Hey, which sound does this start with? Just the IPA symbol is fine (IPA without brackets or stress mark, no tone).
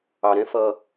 ɑ